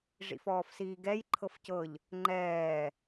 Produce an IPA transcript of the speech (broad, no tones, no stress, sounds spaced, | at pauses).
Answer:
ʐ ḭ f ɔː f s iː ɡ ɛ j ǃʰ ɤ f c ɤ ʎ | ŋ͡ǃ ɛː